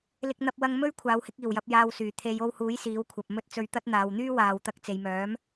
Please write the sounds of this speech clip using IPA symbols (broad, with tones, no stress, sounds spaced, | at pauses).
l ɪ˧ k̚ n̪ ɐ˧ p̚ w ɐ˧ ŋ m ɵ˥ ɥ kʷʰ aː˨˧ w h ɪ˨˥ k̚ iː˨˩ w j ɐ˧ p̚ j aː˨ w s yː˨˩ t̪ʰ e˨˧ j o˧ w h uː˨˥ j s iː˨˥ w kʷʰ ɐ˨ p̚ m ɵ˥ t̚ t͡s ɵ˧ ɥ t̪ ɐ˥ t̚ n̪ aː˨ w n̪ yː˥ w aː˨ w t̪ ɐ˧ k̚ t͡s e˨ j m œː˨˥ m